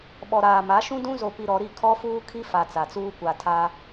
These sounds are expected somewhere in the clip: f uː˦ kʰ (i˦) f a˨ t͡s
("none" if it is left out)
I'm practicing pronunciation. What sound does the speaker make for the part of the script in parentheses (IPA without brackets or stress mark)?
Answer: i˦